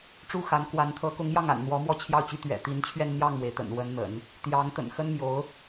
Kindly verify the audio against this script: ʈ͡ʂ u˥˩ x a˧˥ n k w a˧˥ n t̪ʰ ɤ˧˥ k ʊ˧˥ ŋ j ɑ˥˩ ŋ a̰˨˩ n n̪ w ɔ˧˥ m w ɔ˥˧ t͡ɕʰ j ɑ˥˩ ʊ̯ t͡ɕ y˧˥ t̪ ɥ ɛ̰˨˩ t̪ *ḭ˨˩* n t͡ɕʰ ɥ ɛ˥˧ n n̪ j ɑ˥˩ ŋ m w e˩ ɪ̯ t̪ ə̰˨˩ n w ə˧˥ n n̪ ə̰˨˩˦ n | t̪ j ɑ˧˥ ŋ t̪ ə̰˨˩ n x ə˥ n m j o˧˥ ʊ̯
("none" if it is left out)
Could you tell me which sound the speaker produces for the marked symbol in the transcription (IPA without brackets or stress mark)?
i˧˥